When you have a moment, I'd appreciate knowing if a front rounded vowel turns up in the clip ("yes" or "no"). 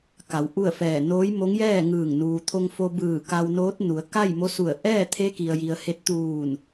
no